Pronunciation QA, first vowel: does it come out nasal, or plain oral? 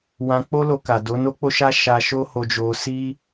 nasal